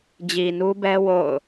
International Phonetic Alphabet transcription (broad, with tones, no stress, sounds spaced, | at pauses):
d͡ʑ i˨ n u˦ b ɛ˦ w o̰˦˨ ʊ̯